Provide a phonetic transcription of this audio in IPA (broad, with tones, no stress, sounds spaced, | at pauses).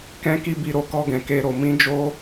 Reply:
k ɛ̃˧ k i˧ b i˨ ɾ o˧ k ɔ˧ ɡ ɛ̃˨ k e˧ ɾ o˨ m ĩ˨˦ d͡ʒ o˧